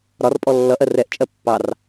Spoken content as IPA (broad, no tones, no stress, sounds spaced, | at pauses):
ɾ ɒ r pʼ ɔ lː ʌ ʔ ɜ r ɛ ʔ t͡ʃʼ ɜ pː ɑ r